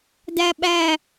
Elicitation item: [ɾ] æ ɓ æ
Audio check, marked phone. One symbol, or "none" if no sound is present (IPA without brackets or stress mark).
d